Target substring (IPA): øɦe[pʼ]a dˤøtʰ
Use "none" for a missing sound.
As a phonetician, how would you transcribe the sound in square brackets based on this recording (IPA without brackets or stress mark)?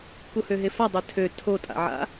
f